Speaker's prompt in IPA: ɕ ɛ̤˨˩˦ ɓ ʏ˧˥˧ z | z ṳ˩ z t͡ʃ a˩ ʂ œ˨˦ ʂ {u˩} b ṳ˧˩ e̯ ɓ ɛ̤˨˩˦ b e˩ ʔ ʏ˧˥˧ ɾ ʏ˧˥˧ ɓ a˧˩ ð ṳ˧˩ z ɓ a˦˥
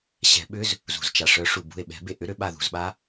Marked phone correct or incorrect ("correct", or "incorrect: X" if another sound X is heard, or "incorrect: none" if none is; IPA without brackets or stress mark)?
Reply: correct